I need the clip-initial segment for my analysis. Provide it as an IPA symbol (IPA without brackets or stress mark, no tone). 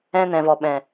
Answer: ɛ̃